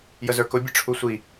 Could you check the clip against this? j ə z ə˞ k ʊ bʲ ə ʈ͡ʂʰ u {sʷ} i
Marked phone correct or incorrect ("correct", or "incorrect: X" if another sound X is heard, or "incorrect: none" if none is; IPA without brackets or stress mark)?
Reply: correct